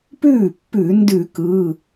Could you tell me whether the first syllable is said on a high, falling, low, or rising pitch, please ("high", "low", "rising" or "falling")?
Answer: falling